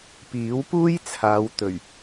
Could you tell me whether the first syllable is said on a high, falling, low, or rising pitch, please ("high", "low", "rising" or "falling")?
rising